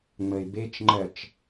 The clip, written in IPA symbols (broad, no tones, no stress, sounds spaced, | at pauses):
ŋ͡m ə ɪ̯ b e t͡ʃ ŋ͡ǃ ɜ t͡ʃ